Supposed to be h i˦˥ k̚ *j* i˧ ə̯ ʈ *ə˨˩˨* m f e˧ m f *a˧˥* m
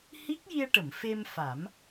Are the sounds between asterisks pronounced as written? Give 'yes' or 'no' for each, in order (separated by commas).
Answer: yes, yes, no